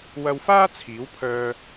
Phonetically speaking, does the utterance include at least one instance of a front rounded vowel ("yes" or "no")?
yes